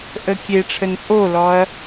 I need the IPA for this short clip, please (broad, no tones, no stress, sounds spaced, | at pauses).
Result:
ʔ ə kʲ e ʈ͡ʂʰ ə n pʼ o l ɔ ɐ̯